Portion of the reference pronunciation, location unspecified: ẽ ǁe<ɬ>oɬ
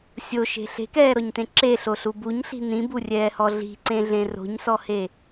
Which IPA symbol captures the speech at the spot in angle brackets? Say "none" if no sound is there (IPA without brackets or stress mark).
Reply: ɬ